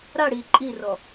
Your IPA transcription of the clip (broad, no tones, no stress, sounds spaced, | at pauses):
ɾ a ɽ iː ǃʼ i r ɔ